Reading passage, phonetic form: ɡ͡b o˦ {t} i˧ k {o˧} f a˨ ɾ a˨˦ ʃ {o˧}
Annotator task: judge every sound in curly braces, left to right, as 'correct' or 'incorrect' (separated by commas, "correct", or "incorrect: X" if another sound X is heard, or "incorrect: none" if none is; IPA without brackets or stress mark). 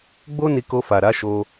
incorrect: n, correct, correct